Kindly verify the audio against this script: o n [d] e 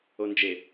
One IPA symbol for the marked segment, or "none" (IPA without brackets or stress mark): d͡ʒ